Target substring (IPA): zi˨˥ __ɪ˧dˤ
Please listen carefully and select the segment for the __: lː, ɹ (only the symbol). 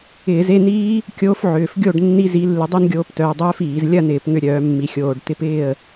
lː